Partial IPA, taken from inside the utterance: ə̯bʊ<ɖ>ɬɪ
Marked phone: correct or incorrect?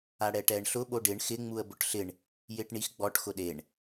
incorrect